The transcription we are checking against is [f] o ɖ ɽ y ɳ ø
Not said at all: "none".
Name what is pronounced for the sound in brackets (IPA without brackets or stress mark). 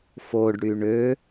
f